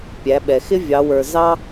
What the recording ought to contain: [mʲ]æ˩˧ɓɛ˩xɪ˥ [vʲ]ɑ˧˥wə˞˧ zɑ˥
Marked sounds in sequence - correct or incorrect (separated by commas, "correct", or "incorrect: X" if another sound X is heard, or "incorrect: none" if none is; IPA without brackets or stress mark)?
incorrect: pʲ, correct